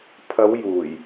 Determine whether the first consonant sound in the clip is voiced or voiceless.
voiceless